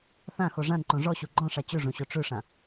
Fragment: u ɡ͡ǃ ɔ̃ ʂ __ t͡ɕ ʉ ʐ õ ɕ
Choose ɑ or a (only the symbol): a